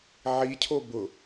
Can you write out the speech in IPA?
ʕicʰo bʊ

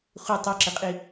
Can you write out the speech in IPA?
χʷɨ tˤɨǁɨqʼi

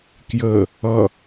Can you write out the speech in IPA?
kjə | ʌ

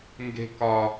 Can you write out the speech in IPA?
ŋɡe̤kɒ

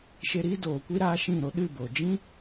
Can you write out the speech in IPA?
ʃe˧ɾiː˦ doː˨kʷi˦ ɾaː˦ ʃĩ˦˨ɾo˦ ɗɨ˦˨bo˨ d͡ʒĩ˦

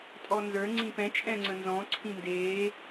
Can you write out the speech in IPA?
tʼɔnzə˞ ŋ͡ǀĩpɛ̃ t͡ʃʼɛ̃ŋ͡ǀə̃nzɔ̃ ǀʰĩndeː

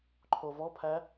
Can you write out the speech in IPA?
ǃʰovɔpʰæ

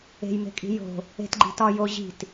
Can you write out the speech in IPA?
e̤jme̤kʼi̤ jo̤ | e̤tɡ͡ǃi̤ tɒ jo ʑi̤t

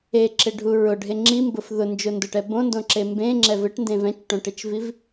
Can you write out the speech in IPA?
eǁɪɖʱu ɹʊɖʱe ŋ͡ǁimbʊf ðʊnd͡ʒʊndʊʈɛ bõndõǁe mbẽŋ͡ǁɛv ɪʈndẽv ɛ̃t͡ʃʈõʈet͡ʃviv

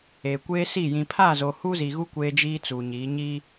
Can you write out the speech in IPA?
eː˨kʷeː˦si˦˨ jĩ˨pʰaː˦˨zo˨ hu˦zi˨ɣu˦ kʷeː˦d͡ʒiː˦t͡suː˨ɲiː˨˦ ɲi˦

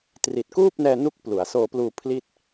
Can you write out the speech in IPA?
tri˨˩t̚kuː˥˩p̚nɛː˧ nu˦˥k̚ plu˩˦a̯soː˧pluː˧pʰli˥˩t̚

